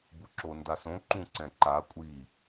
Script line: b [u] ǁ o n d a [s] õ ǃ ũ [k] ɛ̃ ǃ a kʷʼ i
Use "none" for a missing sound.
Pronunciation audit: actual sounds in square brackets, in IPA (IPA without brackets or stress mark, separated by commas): u, s, ǀ